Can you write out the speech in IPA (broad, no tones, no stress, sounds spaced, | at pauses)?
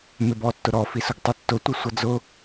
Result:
m ɪ b ɔ tː ʊ ɾ ɔ f i s ʊ ɡ tˤ u tː ʊ tʷ ə sʷ ʌ d͡z ʊ